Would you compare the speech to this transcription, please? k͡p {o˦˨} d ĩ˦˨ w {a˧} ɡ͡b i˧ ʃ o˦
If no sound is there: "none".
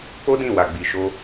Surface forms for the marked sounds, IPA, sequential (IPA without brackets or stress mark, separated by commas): o˦, a˧